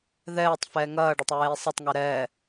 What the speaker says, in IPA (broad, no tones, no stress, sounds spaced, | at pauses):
ð ɛː tˤ f ɛː ŋ ɐː ɖ ɐ tˤ ɹ eː sˤ ɐ tˤ ŋ ɛ ɾ ɛː